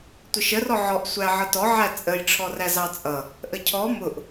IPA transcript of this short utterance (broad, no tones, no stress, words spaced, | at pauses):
tʷʌʃərɔ ʕɔʔsʷæ ʕʌtɔ ʕæt͡sʼəj ʈ͡ʂʰɔræzɑt͡sʼʌ | ʔəcʰɔ mʊʔ